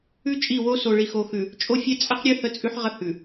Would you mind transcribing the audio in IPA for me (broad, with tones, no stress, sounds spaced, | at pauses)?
ʉ˦ t͡ʃʼ i˦˨ w o˦ s o˨ ɭ i˨ x o˨ x ʉ˨ | t͡ʃʼ o˦ fʲ ɛ˦ t͡sʼ ə˦ q ɾʲ ʉ˦ h ə˦ t͡sʼ ʉ˦ ħ ʁ ə˦ h ʉ˨